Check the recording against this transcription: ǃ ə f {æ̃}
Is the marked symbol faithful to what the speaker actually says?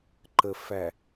no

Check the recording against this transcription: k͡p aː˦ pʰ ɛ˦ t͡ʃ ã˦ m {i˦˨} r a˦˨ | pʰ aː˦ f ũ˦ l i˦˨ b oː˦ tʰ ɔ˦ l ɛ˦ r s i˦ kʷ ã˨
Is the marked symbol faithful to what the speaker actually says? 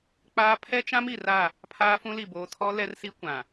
no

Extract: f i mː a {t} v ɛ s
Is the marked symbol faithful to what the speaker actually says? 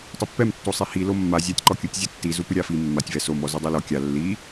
no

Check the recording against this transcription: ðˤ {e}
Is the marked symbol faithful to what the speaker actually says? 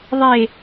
yes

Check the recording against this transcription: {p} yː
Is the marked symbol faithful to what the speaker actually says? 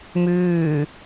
no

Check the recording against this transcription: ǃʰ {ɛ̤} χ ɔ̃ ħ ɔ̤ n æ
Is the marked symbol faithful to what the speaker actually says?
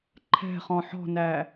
yes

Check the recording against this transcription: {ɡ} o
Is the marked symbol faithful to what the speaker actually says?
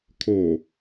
no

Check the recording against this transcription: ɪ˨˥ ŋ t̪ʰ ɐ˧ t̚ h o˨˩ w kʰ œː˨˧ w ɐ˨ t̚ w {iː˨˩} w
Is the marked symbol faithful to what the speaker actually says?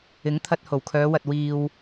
no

